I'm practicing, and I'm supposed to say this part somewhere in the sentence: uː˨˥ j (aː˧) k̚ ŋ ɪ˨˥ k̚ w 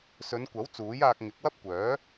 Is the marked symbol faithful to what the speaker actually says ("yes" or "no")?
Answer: yes